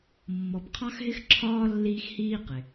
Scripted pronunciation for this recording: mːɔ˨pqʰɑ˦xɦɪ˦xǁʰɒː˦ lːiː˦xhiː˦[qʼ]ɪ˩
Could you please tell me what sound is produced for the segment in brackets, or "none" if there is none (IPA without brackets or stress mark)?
q